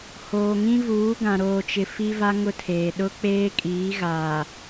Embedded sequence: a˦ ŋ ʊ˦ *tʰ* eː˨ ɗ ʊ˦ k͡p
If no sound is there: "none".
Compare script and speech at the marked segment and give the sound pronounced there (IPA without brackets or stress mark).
tʰ